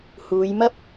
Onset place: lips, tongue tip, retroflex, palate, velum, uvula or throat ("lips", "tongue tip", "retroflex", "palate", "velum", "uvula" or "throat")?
throat